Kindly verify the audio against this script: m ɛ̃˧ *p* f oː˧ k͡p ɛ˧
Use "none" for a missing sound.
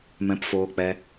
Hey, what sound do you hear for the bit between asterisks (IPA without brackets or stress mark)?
p